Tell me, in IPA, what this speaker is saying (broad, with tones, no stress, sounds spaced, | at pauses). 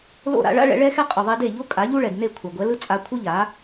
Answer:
l o̰˥˩ ɾ a̰˧ ɭ a̰˥ ɭ ɛ̰˩˥ ɭ ɛ˧ x ɛ˧ qʼ u˩ ðˤ i˧ d e˥˩ ʎ o˥ kʼ a˩˥ ʎ u˥ ɭ ɛ˩ d n e˥˩ kʷʰ a˩ ɡʷ ɛ˩˥ l ɯ˥ t͡sʼ a˧ kʷʰ ɯ˥ ʎ a˩˥